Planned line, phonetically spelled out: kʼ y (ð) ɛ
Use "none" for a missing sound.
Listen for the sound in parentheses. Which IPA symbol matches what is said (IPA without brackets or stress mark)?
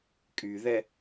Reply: ð